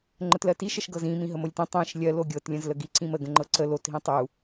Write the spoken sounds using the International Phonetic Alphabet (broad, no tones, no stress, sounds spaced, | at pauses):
ŋ͡ǃ ə t l ɜ t i ʃ ə ʃ ɡ ɤ z ĩ m ĩ ɦ ə m o lʲ t ĩ tˤ ĩ ʃ lʲ ɜ l o ɡʲ ɤ t lʲ ə̃ z l ə ɡ i ǀ ĩ m ə ɡ ə̃ ŋ͡ǃ ɤ ǀ ə l o t ɦ ĩ tˤ u